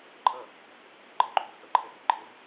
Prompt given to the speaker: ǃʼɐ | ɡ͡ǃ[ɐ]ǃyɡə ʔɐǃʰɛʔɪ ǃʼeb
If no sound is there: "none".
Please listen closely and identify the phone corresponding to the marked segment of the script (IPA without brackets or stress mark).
ɐ